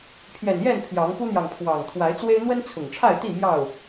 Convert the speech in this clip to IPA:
pʰ j ɛ˨˩ n j ɛ˥˨ n pʰ j ɑ˨˦ ŋ p u˦ n̪ j ɑ˨ ŋ pʰ w ɑ˨˩ ŋ t̪ʰ w a˨˦ ɪ̯ t͡s w e˦ ɪ̯ n̪ w ə˦ n t͡sʰ ʊ˨˩ ŋ ʈ͡ʂʰ a˥˨ ɪ̯ t̪ i˥˨ m j ɑ˥˨ ʊ̯

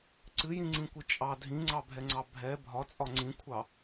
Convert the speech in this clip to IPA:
ǀ ɨ j ĩ ŋ͡ǀ ĩ kʷ ɨ t͡ʃʼ ɑ dʱ ĩ ŋ͡ǀ ɑ bʱ ɛ ŋ͡ǀ ɑ bʱ ɛ bʱ ɒ t͡sʼ ɒ ŋ͡ǀ ĩ kʷʰ ɑ

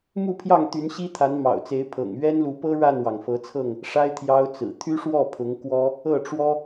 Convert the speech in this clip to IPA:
m u˥˨ pʰ j ɑ˥˨ ŋ t̪ y˨˦ n ɕ i˦ t̪ʰ a˨˦ n m ɑ̰˨˩ ʊ̯ t͡s e˨˦ ɪ̯ pʰ ɤ̰˨˩ ŋ ɥ ɛ˦ n l u˨˦ p ɤ˦ ɻ a˥˨ n w ɑ˩ ŋ f ɤ˨˦ t͡sʰ ɤ˥˨ ŋ | ʂ a˦ ɪ̯ t̪ʰ j ɑ˦ ʊ̯ t͡s ɹ̩˨˩ t̪ʰ y˦ ʂ w ɔ˥˨ pʰ ʊ˨˦ ŋ k w ɔ˦ | ɤ˥˨ ʈ͡ʂ w ɔ˦

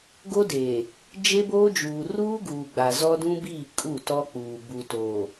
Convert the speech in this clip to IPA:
ɡ o˦ d eː˨ | d͡ʒ e˦ b oː˦ d͡ʒ uː˨ r uː˦ ɡ uː˨ ɡ͡b a˨ z ɔ˦ d ũ˦ b iː˦˨ kʼ u˦˨ t ɔ˦ k͡p uː˨ b u˨ t oː˨

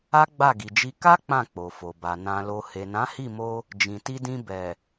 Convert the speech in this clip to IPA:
a˦ ɡ͡b a˦˨ ɡ i˨ d͡ʒ i˧ k a˦ k͡p ã˦˨ k͡p o˨ f o˨ b a˨ n ã˨ l o˨ h e˨ n ã˨˦ h i˦˨ m o˧ | d͡ʒ ĩ˨ t i˧ d ĩ˧ b ɛ˨

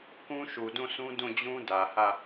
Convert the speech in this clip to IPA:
k ũ˦ ʃ u˨ d ũ˦˨ s ũ˦ d ũ˦˨ d͡ʑ ũ˦ d ä˨ h ä˦˨

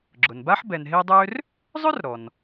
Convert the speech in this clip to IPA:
ɡ͡ǁ ʊ˩ n b a˥ ħ b ɛ˨ n ɦ e˦ dˤ ø˦ r | zˤ ø˥ r ɾ ɔ˩ n

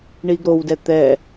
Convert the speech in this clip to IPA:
ɳ i ɡ ɾ o w d ɛ t̪ ɛ

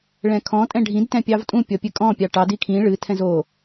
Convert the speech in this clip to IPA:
ɭ ɛ̃ kʰ ɔ̃ tʼ ɛ̃ ɖʱ ĩ d t ɛ̃ pʲ ɑ v tʼ ũ pʲ ɔ pʲ ɨ kʼ ɔ̃ pʲ ɑ ʈ ɑ d i kʰ ĩ ɭ ɨ tʰ ɛ̃ z o

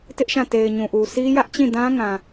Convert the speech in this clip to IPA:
t ɪ˦ ʔ ʃ ã˦˨ t e˨ ɪ̯ ɲ ũ˨ ʔ u˨ sʰ i˦ j ä˦ ʔ t͡ɕ ĩ˦˨ d ã˦ ŋ ã˨

